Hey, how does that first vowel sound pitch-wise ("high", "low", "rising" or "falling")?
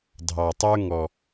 low